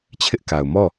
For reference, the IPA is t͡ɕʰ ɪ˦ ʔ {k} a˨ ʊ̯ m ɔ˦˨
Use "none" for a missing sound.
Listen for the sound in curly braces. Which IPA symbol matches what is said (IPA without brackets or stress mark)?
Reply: k